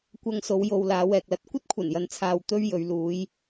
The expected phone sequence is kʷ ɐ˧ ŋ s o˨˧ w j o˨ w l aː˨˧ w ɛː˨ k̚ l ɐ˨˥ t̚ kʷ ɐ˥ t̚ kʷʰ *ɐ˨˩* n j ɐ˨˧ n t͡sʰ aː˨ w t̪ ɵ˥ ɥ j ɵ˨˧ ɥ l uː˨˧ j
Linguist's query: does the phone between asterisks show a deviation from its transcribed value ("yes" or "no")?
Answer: no